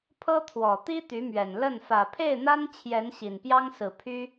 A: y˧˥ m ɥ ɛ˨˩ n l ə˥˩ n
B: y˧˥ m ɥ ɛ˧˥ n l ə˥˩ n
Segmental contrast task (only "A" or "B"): A